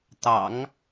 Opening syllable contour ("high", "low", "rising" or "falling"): low